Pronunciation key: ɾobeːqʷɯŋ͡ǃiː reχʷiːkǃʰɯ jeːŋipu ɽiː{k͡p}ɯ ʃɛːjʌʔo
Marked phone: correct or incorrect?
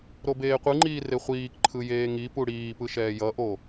incorrect